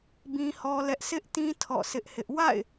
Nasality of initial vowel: nasal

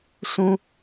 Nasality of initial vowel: nasal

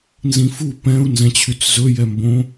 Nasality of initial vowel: nasal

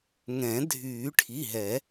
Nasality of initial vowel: nasal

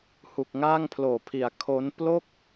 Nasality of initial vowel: oral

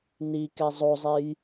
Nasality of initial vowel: oral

